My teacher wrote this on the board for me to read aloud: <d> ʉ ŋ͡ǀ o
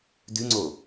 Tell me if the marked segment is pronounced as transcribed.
yes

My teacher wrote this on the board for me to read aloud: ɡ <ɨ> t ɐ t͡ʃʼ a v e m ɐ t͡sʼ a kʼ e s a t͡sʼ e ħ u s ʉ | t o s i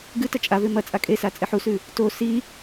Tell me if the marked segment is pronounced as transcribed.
yes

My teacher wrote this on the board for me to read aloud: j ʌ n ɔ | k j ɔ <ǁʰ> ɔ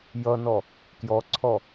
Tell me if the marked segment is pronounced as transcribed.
no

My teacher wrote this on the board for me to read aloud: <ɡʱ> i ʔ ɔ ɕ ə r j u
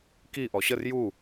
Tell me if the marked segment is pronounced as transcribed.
no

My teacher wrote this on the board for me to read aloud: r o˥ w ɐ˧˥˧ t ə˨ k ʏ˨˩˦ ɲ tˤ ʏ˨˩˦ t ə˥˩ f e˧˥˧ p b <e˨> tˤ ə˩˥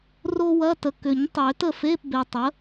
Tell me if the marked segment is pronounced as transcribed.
yes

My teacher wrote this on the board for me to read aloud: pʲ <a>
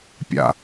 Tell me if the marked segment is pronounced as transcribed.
no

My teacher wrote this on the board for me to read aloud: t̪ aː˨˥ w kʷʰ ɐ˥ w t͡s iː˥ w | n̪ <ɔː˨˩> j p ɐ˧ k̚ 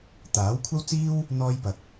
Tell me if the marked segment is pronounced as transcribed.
no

